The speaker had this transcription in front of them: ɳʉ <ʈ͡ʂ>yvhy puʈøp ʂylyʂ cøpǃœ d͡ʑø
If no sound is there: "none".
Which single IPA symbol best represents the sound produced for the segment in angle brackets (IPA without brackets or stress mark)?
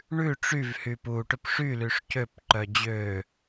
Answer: ʈ͡ʂ